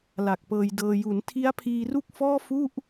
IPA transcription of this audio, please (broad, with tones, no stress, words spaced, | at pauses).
la˨˩k̚pɤː˧jdɤː˧ ju˩˦n tʰi˦˥a̯pʰiː˧ru˥˩k̚fɔː˥˩ fu˥˩ʔ